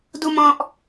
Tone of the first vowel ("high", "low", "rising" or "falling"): high